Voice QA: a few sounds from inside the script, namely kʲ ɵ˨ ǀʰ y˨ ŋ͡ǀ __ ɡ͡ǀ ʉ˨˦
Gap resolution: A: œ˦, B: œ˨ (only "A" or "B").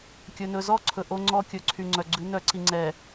B